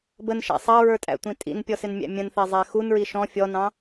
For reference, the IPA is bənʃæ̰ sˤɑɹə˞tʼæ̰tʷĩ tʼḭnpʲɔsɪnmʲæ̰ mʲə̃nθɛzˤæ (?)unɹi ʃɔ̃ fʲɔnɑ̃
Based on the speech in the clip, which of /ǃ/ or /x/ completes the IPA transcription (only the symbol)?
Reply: x